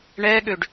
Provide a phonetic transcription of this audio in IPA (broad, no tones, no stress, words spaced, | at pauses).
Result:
ɳɛɠøɖ